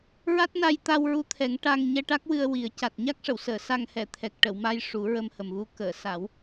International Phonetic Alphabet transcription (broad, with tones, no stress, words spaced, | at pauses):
ɹa˦˥t̚na˧jt̪a˧wɹu˧˥ t̪ʰɛ˨˩˦ŋʈa˧ŋ ɲɛ˧ʈa˦˥k̚wɨ˧ə̯ wi˨˩˦ə̯ca˨˩t̚ ɲa˦˥k̚ʂə˨˩˨wsəː˨˩˨ sa˧ŋhɛ˨˩˨ t̪ʰɛ˨˩k̚ʈə˨˩˨wma˧j ʂu˨˩˦ɹə˧mhə˨˩mvu˧ kəː˨˩˨sa˨˩˦w